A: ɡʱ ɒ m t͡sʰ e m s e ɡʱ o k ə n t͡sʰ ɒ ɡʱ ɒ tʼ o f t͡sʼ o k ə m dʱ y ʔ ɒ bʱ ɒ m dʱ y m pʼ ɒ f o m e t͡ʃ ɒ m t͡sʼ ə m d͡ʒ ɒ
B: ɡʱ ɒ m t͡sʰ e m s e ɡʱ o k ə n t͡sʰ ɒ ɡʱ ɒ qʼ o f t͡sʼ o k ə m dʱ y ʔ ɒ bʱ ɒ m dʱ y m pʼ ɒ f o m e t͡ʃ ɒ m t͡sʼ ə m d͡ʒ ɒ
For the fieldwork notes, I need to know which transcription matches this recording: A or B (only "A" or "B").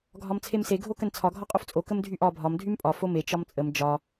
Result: B